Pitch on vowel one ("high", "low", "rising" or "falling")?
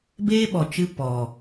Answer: high